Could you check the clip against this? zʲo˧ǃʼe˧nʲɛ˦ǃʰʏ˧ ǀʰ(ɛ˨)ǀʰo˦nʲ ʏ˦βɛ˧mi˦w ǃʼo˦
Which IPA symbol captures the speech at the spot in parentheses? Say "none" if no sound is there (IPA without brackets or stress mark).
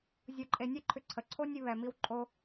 ə˨